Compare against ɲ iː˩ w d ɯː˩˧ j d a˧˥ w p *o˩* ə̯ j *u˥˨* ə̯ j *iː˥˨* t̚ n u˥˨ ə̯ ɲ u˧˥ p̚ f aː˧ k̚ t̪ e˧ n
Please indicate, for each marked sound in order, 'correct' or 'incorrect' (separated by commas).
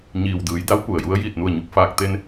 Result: incorrect, incorrect, correct